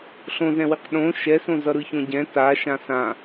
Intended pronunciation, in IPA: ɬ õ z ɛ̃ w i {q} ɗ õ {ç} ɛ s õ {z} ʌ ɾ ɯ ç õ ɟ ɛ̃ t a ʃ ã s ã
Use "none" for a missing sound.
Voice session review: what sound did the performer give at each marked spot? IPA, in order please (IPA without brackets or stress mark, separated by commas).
q, ʃ, z